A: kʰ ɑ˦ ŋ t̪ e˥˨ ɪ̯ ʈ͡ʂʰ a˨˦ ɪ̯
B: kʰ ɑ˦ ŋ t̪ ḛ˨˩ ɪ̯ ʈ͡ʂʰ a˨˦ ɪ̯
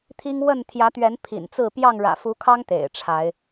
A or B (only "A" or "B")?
B